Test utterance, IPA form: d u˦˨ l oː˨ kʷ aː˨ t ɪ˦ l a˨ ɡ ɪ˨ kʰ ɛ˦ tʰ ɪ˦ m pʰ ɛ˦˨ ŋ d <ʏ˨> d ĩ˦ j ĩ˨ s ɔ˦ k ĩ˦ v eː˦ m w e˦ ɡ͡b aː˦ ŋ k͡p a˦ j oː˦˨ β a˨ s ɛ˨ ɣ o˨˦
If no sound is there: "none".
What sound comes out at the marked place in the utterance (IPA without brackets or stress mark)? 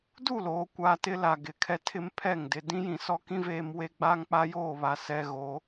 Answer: ɪ˨